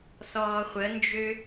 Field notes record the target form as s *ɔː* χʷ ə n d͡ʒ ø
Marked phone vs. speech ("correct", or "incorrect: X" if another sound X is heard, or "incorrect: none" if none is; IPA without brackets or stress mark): correct